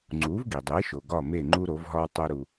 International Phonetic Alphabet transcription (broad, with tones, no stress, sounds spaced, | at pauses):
ŋ͡ǀ u˩˥ v ɡ i˩ dˤ e˩˥ ʃ o˩ ɡ ɒ˥˩ m e˥˩ ŋ͡ǃ u˥ ɾ o˩˥ v ɦ ɒ˥ w tˤ o˥ ɾ u˧